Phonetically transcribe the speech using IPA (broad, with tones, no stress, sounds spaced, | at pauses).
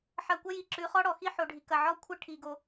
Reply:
ħ ɐ˧ kʷ ɐ˦ j i˨ ǁ ʉ˨˦ χ ɔ˦ ɽ ɔ˨ x i˦ ħ o˨ ɖʱ i˨ k ɐ˨ ʕ ɔ˦ kʷʰ ɐ˦ ʈʰ i˨ ɡ o˧